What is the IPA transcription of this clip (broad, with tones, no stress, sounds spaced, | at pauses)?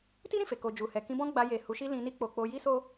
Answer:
t i˦ ɾ ĩ˦˨ f e˨ k o˨ d͡ʒ u˨ h ɛ˨ k ĩ˧ b ɔ̃˦ ɡ͡b a˧ j e˨ h u˨˦ ʃ i˦ l ĩ˧ n i˦ k͡p o˧ k͡p o˧ j i˦ s o˦